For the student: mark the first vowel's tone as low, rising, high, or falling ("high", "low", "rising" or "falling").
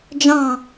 falling